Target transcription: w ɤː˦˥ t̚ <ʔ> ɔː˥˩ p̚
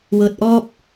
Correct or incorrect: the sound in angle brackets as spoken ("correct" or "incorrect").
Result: correct